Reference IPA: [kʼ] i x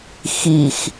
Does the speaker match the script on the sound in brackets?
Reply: no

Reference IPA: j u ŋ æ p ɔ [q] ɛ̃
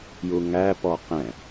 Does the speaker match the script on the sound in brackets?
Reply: yes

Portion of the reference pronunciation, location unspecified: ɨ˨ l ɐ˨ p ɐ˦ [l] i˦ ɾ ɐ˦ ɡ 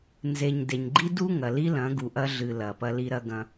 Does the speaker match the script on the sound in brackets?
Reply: yes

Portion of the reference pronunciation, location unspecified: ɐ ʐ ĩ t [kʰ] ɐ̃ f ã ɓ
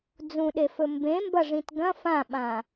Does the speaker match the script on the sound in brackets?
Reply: no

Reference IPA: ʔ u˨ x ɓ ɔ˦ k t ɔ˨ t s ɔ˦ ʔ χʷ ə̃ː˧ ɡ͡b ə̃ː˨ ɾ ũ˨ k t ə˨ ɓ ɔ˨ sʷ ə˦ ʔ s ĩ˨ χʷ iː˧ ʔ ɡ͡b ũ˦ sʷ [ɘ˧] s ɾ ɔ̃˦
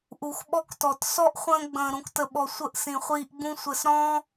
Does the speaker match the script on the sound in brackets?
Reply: yes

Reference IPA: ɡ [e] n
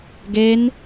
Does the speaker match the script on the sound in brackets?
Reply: yes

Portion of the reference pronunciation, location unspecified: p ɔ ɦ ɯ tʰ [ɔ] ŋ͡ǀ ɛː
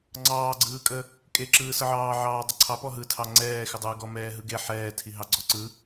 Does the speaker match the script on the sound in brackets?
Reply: no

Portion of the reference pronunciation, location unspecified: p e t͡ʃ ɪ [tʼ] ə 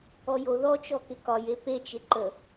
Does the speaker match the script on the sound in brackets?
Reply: no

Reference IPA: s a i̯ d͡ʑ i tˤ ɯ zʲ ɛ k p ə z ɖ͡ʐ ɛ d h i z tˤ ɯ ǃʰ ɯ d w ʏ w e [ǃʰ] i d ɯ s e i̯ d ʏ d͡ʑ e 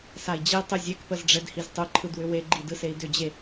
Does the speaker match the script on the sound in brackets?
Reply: no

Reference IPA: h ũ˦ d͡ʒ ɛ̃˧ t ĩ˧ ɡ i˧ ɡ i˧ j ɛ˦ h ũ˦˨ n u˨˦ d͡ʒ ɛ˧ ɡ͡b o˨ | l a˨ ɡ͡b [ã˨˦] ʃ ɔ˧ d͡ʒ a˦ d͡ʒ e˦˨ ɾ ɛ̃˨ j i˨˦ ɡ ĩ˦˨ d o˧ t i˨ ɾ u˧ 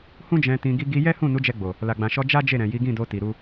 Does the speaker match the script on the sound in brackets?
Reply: no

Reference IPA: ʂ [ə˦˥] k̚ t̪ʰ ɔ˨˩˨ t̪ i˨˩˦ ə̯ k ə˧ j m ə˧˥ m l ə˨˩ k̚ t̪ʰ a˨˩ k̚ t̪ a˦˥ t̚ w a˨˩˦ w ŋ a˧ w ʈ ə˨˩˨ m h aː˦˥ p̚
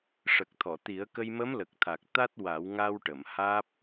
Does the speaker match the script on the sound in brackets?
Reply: no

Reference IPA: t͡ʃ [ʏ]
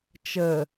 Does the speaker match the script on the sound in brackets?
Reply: no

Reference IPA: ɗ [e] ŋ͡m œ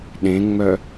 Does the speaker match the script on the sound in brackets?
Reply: no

